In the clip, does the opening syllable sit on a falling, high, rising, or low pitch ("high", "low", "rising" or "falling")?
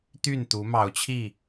falling